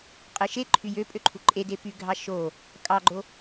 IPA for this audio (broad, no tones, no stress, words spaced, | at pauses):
qʼɯʃeǃʰy jøpʼø ǃʰuǃʼede pyɡʱɑ ʃo | kʼɑɡ͡ǃo